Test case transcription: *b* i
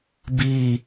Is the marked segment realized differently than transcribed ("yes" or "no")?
no